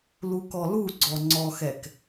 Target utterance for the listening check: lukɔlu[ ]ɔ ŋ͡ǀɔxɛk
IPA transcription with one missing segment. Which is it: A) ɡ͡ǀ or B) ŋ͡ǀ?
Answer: A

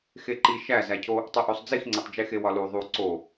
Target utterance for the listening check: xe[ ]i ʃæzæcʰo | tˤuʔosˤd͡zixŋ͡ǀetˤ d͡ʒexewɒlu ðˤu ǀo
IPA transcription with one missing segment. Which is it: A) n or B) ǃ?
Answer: B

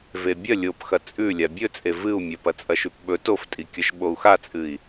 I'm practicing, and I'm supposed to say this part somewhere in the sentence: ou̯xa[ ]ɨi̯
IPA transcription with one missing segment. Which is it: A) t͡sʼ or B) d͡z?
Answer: A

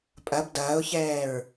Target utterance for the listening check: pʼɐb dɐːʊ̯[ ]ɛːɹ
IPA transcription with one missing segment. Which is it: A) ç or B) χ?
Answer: A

